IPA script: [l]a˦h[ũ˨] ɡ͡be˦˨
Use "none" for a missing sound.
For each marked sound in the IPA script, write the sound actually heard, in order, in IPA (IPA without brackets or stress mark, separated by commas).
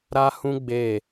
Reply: ɾ, ũ˦